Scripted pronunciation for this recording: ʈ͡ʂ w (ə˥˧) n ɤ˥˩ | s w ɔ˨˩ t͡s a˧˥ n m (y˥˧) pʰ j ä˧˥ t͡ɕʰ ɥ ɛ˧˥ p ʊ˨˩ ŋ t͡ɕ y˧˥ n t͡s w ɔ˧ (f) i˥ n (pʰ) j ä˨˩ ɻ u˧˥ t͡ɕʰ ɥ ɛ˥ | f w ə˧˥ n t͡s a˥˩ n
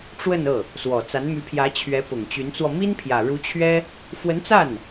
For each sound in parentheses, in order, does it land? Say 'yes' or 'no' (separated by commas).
yes, no, no, yes